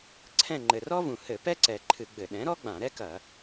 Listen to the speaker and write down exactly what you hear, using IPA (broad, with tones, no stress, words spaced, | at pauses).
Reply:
ǀʰɛ̃˦˨ŋ͡ǃɘ˨˩rɔ˥vũ˨˩ hɘ˧˩˧pɛ˥ǀɛ˨˩ ǃʰɨ˧˩˧ɡ͡bɘ˧˩˧ ɗɛ̃˩˥ɾɔ˥ ɡ͡bã˧˩˧ɾɛ˥kɐ˧˩˧